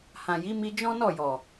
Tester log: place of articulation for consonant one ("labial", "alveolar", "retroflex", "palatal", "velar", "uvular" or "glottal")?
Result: glottal